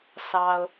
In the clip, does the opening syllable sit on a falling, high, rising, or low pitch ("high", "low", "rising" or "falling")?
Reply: low